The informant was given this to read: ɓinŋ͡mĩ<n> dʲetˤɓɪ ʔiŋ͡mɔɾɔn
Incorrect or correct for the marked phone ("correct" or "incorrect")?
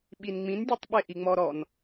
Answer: correct